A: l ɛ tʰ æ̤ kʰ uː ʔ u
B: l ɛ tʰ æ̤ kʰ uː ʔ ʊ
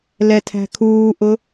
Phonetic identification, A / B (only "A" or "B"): B